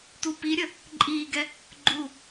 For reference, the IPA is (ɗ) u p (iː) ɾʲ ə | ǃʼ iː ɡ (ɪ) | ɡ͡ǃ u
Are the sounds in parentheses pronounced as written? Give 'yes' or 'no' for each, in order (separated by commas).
no, no, no